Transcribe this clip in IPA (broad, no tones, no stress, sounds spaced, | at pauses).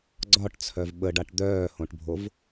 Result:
ɡ͡ǀ ɒ ʈ t͡sʰ œ v ɓ ə ɖ a ʈ d̪ œː h õ ʈ bʱ o v